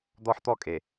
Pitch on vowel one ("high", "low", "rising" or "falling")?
high